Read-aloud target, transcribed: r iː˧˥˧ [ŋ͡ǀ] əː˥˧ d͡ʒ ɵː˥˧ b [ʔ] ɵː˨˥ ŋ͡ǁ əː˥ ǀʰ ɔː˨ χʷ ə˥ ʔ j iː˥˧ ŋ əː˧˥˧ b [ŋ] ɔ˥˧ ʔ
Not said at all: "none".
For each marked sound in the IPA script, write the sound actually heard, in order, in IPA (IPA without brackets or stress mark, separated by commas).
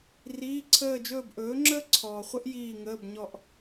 ǀʰ, ʔ, ɲ